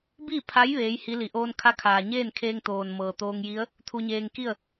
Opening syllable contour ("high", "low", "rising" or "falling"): falling